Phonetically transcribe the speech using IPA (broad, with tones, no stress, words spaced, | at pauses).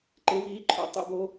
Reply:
ǃe˩˧viː˩˧ǃʰo̰˩˧ tˤṵ˨˩bo˩˧